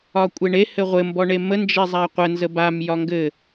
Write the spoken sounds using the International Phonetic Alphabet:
ɒ kʷʼ e ɳ e h ɘ ʁʷ ɘ m b ɔ ɳ e m ə n d͡ʒ e zˤ a qʷ ə n z ə b a m j ɒ ŋ ɡ ɘ

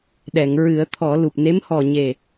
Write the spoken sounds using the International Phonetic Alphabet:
ɗ ɛ˨˩˨ ŋ ɹ ɨ˨˩˦ ə̯ t̪ʰ ɔ˨˩˦ l u˨˩ p̚ n e˧˥ m h ɔ˨˩ ɲ e˨˩

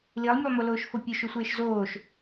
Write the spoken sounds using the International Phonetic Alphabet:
l i lˠ mʲ u lˠ m o l oː ʃ f o pʲ o ʃ u sʷ eː ʃ z oː ʃ

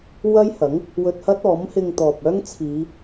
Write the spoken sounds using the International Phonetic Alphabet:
w ɐ˥ j h ɐ˨˥ ŋ | w ɵ˧ t̚ h ɐ˥ t̚ ɔː˨˥ m h ɪ˧ ŋ t̪ ɔː˨ p̚ œː˥ ŋ t͡sʰ iː˨˧

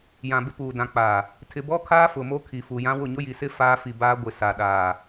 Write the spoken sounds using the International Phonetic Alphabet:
j ã˨ b ɪ˦ p uː˨ d ã˨ k͡p aː˨ | tʰ ɪ˨ b ɔ˦ kʰ aː˦ f ʊ˨ m o˦ kʰ i˨ f uː˨ j ã˦ w ʊ˦˨ ɲ ʊ˦ j i˨ s ɪ˦ f aː˦ f i˨ b aː˦ ɡʷ ɪ˨ s a˨ ɗ aː˨

